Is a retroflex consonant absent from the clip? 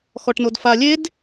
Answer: no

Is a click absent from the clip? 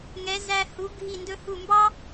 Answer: yes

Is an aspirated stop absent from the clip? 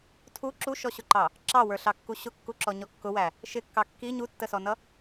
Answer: no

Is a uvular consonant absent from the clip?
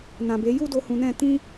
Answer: yes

